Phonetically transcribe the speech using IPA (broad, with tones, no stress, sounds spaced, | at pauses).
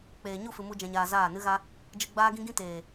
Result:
k͡p eː˨ ɲ u˦˨ f ɨ˨ m u˦ d͡ʒ ɛ̃˧ ɲ aː˧ z aː˦˨ n ɨ˦ ɣ a˦ | d͡ʒ ɨ˧ ɡ͡b aː˦ ɡ ĩ˦ ɡ ĩ˦ t eː˨